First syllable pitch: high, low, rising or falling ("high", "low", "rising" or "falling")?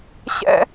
high